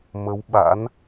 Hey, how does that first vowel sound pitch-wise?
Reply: rising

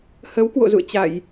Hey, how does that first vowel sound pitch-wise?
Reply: rising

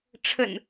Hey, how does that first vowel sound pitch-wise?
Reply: low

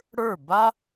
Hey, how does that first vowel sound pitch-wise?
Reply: falling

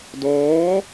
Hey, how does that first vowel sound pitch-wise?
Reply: rising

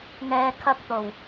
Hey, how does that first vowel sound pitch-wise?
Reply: high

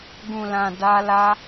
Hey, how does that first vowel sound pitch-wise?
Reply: low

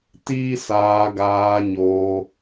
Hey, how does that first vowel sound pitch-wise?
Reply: high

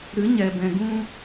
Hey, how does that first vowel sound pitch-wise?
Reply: rising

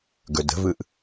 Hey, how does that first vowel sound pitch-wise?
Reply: low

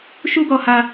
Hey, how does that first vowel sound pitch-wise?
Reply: high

